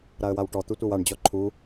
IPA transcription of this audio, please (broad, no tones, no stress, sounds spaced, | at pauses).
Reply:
ɾ a ə̯ w a w ʈ ɔ t̪ u tʷ ɤ w a ɳ d͡ʑ ɔ ǃʰ u